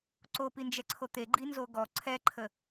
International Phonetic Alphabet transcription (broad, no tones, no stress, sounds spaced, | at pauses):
ǀ o p i n d͡ʒ ɛ ǀʰ o t̪ e ɡ͡ǃ i n z o ɡ ɔ ǀʰ ɛ ǃʰ ə